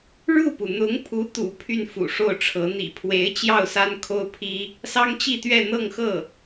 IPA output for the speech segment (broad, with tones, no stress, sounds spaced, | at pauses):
ɻ u˥˩ p u˩ n̪ ʊ˧˥ ŋ pʰ u˧˥ t̪ ṵ˨˩ pʰ y˥˩ n f ṵ˨˩ ʂ o˥˩ ʊ̯ ʈ͡ʂʰ ɤ˧˥ n̪ ḭ˨˩ pʰ w e˧˥ ɪ̯ t͡ɕ j ɑ˥˩ ʊ̯ s a˥ n kʰ o˥ ʊ̯ pʰ i˥ | s ɑ˥ ŋ t͡ɕ i˥˧ t̪ ɥ ɛ˥˧ n̪ ɤ˥˧ ŋ x ɤ˥˩